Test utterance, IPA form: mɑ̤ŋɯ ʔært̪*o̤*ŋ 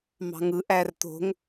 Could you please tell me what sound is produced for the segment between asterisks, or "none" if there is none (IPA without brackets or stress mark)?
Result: o̤